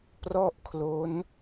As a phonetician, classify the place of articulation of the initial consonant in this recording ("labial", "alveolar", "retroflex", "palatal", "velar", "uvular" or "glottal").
labial